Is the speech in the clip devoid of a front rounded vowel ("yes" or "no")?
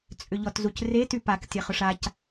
no